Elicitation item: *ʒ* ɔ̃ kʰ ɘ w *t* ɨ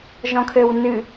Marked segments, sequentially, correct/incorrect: correct, incorrect

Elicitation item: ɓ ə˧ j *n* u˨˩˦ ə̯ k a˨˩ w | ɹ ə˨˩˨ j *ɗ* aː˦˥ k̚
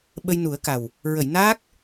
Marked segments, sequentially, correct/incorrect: correct, incorrect

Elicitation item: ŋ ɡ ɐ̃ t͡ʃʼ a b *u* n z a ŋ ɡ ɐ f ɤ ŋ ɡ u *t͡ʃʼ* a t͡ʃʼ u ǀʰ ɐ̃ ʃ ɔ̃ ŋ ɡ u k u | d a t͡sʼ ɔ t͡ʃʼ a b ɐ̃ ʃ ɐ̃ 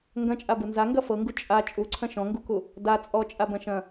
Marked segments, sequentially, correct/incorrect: correct, correct

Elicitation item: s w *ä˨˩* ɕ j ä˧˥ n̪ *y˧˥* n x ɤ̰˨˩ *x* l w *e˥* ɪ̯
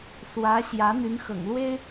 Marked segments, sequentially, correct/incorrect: incorrect, correct, incorrect, correct

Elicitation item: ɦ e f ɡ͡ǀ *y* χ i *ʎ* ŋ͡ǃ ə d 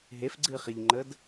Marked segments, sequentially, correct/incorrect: incorrect, correct

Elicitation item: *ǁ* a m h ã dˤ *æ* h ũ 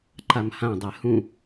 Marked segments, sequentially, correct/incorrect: incorrect, incorrect

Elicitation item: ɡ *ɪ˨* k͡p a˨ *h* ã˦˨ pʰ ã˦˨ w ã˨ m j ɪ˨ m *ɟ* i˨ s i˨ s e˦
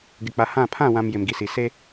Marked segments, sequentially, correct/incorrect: correct, correct, incorrect

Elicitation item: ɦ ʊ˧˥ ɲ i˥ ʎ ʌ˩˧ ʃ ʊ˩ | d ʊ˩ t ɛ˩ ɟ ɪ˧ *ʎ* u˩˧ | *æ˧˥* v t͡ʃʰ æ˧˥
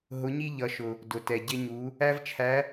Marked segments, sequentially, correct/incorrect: incorrect, incorrect

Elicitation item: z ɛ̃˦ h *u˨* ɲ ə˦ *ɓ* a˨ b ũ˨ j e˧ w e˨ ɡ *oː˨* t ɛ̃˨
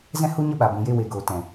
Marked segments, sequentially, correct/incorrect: incorrect, correct, correct

